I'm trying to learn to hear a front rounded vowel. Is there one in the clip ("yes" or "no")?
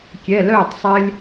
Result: yes